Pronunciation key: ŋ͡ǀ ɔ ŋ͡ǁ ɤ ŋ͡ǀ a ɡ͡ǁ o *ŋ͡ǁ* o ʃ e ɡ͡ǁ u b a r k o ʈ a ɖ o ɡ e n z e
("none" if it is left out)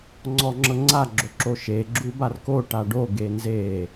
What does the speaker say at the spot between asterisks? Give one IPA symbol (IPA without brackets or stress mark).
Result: ǁ